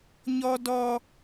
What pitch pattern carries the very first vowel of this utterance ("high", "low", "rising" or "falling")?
high